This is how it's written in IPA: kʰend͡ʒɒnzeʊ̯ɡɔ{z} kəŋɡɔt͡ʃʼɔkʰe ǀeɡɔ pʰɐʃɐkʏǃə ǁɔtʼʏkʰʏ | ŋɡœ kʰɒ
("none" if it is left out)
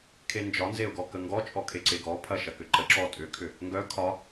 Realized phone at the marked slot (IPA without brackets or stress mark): none